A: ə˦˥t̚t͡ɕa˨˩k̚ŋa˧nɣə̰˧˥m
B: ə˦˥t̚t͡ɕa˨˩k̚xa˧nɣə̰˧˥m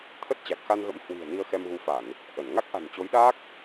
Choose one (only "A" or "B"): B